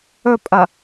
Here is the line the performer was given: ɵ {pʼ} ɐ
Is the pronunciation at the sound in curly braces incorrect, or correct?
correct